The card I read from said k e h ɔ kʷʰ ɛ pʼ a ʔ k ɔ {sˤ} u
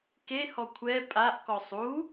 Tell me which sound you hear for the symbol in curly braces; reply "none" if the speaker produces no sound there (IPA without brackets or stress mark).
sˤ